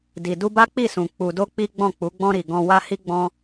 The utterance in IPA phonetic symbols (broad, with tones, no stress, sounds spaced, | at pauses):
d i˨ d u˧ b a˦ k͡p i˦˨ s ũ˨ k͡p u˧ d o˦ k͡p i˦ ɡ͡b ɔ̃˦˨ k͡p u˨˦ ɡ͡b ɔ̃˧ ɾ i˨ ɡ ɔ̃˧ w a˦ h i˦ ɡ͡b ɔ̃˦